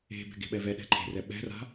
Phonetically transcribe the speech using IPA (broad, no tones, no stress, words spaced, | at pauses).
e̤bɛ̤ ɡe̤ɓɛvɛɗɛ̤ ǃʰe̤rɛ ɓɛ̤ra̤